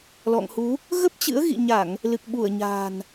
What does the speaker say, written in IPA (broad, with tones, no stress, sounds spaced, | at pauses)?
l ɔ̰˧˨ ŋ h u˨˦ | ɣ ə˦˥ p̚ t͡ɕ ɨ̰˧˥ ə̯ ɣ ḭ˧˨ ɲ a˧˩˨ ŋ | l ɨ˨˩ k̚ ɓ u˧˩ ə̯ ɲ a̤ː˨˩ n